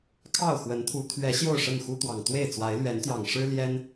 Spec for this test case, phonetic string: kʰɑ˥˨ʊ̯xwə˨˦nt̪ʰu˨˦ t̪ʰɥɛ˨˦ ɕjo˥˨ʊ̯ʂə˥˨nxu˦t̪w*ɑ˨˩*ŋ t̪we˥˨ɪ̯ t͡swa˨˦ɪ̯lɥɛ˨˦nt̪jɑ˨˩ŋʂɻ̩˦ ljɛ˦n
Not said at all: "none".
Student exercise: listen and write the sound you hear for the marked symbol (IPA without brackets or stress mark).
ɑ˨˩